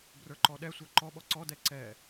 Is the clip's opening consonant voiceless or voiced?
voiced